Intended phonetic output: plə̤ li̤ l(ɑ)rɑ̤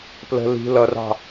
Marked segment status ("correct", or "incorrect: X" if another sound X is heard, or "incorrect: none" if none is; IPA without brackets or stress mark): incorrect: ʌ